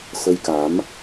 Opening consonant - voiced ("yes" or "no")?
no